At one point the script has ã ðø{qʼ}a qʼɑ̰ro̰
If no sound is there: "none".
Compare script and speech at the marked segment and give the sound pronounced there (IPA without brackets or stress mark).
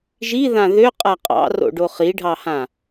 qʼ